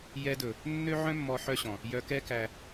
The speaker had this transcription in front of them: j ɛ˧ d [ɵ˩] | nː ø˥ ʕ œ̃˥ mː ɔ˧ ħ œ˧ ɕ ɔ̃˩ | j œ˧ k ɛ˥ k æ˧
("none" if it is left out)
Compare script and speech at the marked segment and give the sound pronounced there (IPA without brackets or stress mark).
ɵ˩